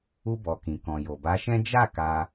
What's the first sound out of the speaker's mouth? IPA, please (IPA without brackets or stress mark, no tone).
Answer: u